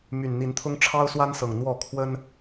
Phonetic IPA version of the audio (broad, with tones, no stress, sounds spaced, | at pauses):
m y˨˩ n n̪ i˨˦ n t̪ʰ ʊ˦ ŋ ʈ͡ʂʰ ɑ˦ ʊ̯ s w a˦ n s ɤ˨˩ ŋ n̪ w ɔ˥˨ kʰ w ə˦ n